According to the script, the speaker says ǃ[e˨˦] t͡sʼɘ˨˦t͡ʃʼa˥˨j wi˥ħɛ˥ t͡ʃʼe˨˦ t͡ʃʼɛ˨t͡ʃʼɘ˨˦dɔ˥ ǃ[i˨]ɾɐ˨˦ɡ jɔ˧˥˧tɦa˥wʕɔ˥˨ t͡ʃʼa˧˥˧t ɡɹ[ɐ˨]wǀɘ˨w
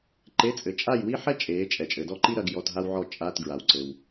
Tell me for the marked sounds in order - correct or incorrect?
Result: incorrect, incorrect, incorrect

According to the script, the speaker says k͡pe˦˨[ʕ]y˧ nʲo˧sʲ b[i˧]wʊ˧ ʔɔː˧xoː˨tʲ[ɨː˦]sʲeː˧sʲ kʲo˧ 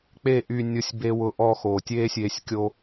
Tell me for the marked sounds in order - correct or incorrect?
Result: incorrect, incorrect, incorrect

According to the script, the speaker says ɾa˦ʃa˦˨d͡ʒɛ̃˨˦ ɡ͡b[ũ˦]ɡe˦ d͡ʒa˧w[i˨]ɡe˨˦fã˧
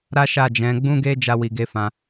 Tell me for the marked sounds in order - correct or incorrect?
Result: correct, correct

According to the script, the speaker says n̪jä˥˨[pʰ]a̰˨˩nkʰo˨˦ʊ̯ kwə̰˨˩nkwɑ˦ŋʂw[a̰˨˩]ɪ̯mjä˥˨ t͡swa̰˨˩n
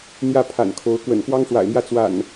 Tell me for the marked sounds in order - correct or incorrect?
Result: correct, correct

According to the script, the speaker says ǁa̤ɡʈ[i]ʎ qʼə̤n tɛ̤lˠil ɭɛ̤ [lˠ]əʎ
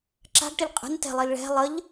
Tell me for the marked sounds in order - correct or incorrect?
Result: incorrect, correct

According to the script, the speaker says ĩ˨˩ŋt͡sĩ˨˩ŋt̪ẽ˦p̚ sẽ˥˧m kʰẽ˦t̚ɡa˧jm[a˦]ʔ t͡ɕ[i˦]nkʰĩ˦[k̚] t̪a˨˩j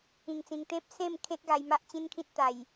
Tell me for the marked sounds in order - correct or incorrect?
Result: correct, incorrect, incorrect

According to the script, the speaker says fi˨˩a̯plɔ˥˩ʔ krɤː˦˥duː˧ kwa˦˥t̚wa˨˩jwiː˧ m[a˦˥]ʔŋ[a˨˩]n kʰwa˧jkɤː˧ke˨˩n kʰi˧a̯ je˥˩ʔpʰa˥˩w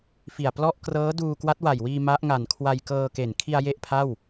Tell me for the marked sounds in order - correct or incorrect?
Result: correct, correct

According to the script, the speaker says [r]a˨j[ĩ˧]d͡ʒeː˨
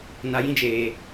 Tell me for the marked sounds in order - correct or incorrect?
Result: incorrect, correct

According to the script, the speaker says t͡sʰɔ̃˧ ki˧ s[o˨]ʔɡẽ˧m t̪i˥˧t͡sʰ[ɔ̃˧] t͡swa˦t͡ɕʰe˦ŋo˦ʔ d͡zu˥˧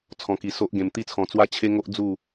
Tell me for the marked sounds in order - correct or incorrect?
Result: incorrect, correct

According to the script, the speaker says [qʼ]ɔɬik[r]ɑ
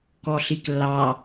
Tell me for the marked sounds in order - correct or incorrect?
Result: incorrect, incorrect

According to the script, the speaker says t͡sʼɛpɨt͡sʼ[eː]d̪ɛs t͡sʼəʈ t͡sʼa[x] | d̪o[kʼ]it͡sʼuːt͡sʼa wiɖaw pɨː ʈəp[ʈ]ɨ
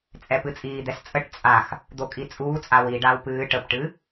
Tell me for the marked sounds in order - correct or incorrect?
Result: incorrect, correct, correct, correct

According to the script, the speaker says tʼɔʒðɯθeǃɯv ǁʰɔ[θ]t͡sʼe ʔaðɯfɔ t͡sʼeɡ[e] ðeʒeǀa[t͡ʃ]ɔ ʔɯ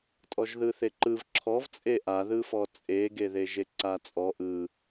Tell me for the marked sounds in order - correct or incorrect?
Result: incorrect, correct, incorrect

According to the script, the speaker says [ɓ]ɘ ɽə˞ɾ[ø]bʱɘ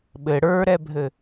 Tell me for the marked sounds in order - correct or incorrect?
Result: correct, incorrect

